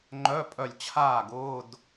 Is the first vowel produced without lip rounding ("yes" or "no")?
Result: no